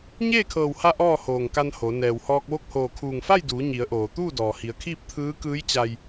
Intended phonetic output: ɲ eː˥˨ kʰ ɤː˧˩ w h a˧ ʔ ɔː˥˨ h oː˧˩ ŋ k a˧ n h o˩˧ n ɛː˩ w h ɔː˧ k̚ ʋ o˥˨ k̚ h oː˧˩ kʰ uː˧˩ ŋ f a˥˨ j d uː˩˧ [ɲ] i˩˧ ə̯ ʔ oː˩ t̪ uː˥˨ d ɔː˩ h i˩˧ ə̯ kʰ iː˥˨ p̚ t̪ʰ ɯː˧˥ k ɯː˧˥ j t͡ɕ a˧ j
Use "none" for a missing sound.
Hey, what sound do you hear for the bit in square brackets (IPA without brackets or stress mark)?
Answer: ɲ